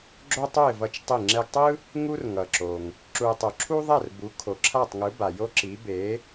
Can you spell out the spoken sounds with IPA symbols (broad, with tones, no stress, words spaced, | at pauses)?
ɡ͡ǁo˥tˤu˥˩ɪ̯vʌ˧t͡ʃ tˤi˥˩ŋ͡ǁɛ˥ɡ tˤɯ˥ | ŋu˥r ŋʌ˩ǁo˩ŋ | ǁu˧ɪ̯tˤu˩ ǁʰu˥ðˤɛ˥˩r bu˩˥kʰo˩ǁʰa˥˩tˤŋɯ˩˥ ba˩jo˥ǁi˩˥ be˩˥